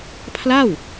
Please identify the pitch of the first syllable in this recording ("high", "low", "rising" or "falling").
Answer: falling